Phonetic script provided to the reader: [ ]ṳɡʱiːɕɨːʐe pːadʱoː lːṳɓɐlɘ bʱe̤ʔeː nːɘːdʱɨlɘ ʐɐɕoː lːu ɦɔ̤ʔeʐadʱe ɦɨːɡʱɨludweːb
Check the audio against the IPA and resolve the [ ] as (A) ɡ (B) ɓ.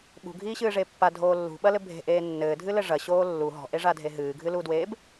B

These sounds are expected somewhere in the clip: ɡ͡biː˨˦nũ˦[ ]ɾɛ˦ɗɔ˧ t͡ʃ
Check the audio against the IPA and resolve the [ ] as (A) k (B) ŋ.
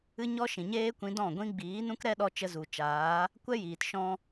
A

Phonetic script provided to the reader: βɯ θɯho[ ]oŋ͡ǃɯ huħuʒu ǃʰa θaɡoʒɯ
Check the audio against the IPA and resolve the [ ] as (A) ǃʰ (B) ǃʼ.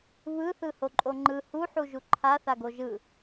B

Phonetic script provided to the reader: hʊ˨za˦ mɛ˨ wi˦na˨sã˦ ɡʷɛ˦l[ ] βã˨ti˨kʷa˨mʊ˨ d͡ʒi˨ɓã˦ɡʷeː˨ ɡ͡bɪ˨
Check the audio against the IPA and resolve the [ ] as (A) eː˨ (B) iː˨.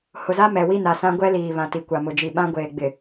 B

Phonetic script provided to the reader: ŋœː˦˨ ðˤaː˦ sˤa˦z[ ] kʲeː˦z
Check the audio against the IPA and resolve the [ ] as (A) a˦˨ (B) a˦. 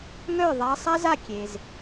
A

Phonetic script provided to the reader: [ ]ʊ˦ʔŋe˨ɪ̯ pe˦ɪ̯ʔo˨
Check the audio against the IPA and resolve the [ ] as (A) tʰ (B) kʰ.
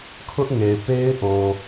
B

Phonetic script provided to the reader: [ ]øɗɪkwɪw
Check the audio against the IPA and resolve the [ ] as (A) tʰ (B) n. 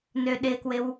B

